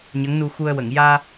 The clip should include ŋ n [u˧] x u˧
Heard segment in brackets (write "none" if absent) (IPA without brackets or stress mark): u˧